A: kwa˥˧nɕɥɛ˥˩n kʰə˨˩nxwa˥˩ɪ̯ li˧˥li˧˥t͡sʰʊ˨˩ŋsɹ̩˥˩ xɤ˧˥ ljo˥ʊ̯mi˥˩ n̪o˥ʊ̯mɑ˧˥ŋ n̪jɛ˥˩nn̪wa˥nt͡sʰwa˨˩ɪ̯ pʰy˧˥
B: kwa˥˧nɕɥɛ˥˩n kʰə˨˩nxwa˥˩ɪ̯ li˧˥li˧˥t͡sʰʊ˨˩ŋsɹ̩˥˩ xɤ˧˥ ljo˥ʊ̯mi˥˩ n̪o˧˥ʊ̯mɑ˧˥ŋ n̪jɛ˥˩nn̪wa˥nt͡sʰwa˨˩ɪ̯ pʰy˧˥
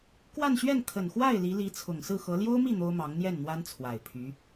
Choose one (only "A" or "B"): A